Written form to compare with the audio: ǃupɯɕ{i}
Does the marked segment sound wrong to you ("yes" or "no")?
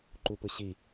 no